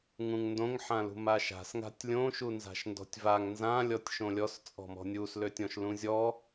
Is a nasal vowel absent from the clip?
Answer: no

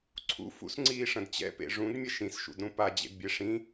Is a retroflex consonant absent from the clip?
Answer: no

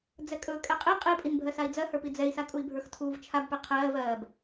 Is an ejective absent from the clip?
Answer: no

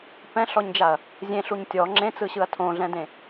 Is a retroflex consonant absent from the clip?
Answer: yes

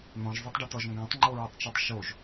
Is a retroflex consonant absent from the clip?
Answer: no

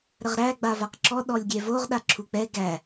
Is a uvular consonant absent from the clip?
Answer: no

